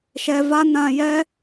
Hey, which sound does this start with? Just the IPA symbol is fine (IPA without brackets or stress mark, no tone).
ʃ